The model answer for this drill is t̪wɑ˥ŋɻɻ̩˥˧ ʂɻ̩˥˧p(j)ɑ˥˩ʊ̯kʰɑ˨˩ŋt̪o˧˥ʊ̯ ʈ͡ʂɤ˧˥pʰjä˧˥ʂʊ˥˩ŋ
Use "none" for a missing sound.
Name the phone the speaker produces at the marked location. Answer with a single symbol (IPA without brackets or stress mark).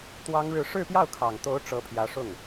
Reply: j